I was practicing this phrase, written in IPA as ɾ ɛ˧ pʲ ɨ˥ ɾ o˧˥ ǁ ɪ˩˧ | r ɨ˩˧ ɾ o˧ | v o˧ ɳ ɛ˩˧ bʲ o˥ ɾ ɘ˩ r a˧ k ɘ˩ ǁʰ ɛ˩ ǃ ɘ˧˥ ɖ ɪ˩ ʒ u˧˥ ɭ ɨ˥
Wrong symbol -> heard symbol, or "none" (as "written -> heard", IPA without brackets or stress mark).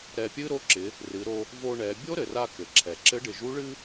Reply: ǃ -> ǁ